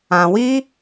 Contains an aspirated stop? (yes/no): no